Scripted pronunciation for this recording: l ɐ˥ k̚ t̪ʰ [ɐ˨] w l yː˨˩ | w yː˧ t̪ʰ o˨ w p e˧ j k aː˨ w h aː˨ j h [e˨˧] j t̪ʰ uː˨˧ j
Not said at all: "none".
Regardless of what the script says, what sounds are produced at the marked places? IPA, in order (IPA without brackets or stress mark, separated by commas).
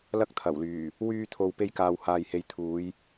ɐ˨˩, e˨˧